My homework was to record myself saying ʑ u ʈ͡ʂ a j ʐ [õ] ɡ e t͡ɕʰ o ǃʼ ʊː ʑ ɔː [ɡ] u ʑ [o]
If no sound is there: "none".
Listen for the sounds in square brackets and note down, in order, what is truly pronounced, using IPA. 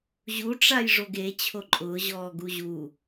o, ɡ, u

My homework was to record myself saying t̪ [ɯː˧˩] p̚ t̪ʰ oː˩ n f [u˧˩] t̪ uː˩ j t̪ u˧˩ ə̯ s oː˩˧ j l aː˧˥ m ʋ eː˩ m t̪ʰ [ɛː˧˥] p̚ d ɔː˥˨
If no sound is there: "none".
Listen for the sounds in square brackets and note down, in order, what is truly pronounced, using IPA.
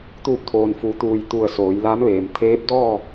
uː˧˩, u˩˧, eː˧˥

